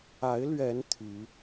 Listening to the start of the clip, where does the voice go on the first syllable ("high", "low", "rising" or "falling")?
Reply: rising